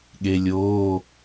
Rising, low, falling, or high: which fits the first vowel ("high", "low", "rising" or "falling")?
low